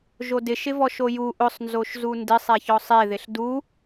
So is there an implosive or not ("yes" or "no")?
no